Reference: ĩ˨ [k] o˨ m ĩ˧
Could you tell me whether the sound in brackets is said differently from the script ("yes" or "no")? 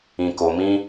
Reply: no